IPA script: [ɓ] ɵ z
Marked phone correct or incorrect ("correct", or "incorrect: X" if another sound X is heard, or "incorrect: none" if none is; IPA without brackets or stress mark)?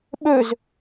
correct